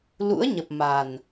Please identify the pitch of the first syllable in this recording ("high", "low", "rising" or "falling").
rising